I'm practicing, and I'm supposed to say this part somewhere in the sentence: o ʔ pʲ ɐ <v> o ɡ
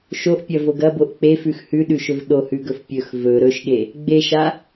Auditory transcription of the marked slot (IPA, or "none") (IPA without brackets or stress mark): v